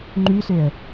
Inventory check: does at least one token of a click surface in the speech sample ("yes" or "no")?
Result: yes